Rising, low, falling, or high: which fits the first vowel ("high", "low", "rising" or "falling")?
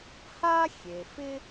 high